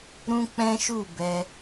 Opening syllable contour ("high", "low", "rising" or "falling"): high